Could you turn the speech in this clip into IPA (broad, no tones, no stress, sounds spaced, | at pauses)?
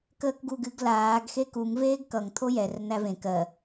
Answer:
k əː k ɡ u ɡ ɨ ɡ l aː ɡ x e k u ŋ v eː ɡ k ʌ ŋ t̪ʰ o j ɛ r n̪ æ v ẽ k ɜ